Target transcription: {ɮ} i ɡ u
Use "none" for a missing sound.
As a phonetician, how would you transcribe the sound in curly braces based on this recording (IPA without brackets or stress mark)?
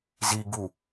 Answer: z